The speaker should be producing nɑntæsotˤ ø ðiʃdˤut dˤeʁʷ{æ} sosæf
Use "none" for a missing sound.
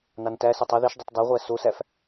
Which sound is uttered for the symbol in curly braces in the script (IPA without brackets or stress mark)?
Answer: æ